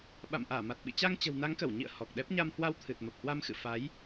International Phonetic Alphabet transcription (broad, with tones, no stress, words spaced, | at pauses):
ɓa̰˧˨mʔaː˧˩ma˨˩t̚ ɓḭ˧˨t͡ɕa˧ŋ t͡ɕə̤˨˩w na˨˦ŋkə˧˩w ɲḭ˧˨ə̯ hɔ˨˩k̚ɗɛ˦˥p̚ ɲa˧mhwa˧w t̪ʰɨ˨˩t̚mə˨˩p̚hwa˧mxɨ̰˧˨ fa˨˦j